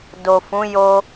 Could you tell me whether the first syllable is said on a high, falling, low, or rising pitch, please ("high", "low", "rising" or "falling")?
low